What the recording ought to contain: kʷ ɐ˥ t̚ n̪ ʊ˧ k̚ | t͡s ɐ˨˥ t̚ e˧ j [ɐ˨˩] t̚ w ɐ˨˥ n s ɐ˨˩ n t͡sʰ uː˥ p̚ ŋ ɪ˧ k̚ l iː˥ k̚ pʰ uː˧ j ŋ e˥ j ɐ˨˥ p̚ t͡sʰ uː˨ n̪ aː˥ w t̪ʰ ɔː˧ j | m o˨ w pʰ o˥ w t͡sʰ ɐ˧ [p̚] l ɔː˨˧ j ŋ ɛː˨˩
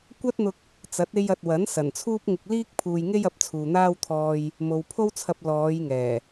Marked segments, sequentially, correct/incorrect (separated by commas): incorrect, correct